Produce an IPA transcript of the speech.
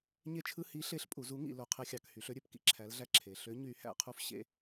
ɲ e˧ t͡ʃʰ ɯ˧ h i˨˥ ɬ e˨˥ ɬ pʼ u˩˧ z u˨˥ ŋ ḭ˩˧ l o˩˧ qʰ e˧ xʲ ɑ˩˧ k h y˩˧ ɬ ø˧ ɾʲ ø˩˧ p k ḭ˩˧ ǁʰ æ˨˥ l ɮ æ˧ ǁʰ e˩˧ ɬ ø˨˥ ɲ y˨˥ h æ̰˩˧ qʰ u˧ f ɕ ḛ˧

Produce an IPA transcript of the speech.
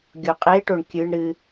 ɡʲ o qʼ e ʈ o ɳ kʲ ɨ ɳ ɾ ɨ

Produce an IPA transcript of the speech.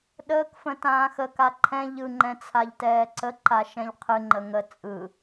ɗ əː k f ə̃ t ãː x ə k a ǃʰ ɛ̃ ʎ ɯ ŋ͡ǃ ɛ̃ t͡sʰ a ʎ t ɛː ǀ ə ǃ a ʃ ɛ̃ ʎ qʰ ɨ ŋ͡ǃ ə ŋ ə t͡sʼ ɯ

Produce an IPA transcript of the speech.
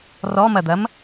r ɔ m ɐ d̪ ɐ m

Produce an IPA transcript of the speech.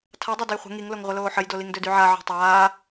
tʰ a dˤ ø d ə j χʷ ə̤ ŋ i ŋ l o ŋ ʁʷ ə l oː ħ ə j d o l i ŋ d ø d y ʕ a ʕ ɔ̤ tˤ aː

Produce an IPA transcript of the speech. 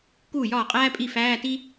k uː˥˩ j ɒː˥˩ qʼ æː˥ pʼ i˥˩ f æː˧˥˧ t i˥

